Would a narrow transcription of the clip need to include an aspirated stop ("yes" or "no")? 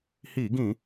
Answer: no